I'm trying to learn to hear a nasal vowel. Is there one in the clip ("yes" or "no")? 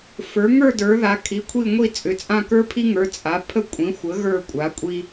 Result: yes